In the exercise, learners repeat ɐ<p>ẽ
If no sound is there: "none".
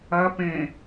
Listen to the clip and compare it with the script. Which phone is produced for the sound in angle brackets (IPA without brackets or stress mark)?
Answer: p